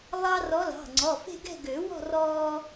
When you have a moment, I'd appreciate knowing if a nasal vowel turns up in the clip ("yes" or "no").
no